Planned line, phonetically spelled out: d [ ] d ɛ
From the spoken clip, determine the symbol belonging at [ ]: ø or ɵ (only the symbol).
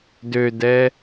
ø